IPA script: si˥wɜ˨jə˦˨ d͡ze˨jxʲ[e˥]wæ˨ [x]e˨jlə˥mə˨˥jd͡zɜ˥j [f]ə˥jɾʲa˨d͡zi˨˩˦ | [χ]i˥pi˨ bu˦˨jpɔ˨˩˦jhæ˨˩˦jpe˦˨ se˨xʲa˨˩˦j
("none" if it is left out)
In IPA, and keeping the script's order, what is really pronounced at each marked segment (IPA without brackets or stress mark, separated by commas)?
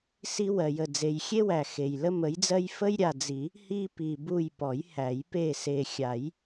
e˥, x, f, h